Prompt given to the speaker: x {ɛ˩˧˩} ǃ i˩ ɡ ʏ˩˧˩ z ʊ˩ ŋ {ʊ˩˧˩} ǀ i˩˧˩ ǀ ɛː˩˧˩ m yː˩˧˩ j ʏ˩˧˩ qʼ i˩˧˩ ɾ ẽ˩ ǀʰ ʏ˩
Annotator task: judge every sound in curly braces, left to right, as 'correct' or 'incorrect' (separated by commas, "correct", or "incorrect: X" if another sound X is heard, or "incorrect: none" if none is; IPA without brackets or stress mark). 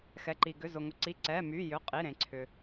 correct, incorrect: ʊ˩